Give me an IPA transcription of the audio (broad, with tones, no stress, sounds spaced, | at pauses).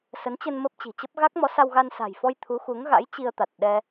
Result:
s ə˨˦ n t͡ɕ ə˧ n m ə˦˥ p̚ t͡ɕ i̤˨˩ t͡ɕ ə˦˥ p̚ ɣ a˦˥ k̚ m ɔ˨˦ s a˧ w ɣ a˧ n s a̤˨˩ j f ɔ˧ j t̪ʰ u˨˦ x u˨˦ ŋ ɣ a̰˧˥ j t͡ɕ i˧ ə̯ t̪ a˨˩ t̚ ɗ ɛ˧